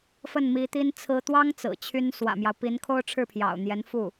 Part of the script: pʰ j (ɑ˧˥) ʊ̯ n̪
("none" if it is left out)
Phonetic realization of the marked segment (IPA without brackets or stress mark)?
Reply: ɑ̰˨˩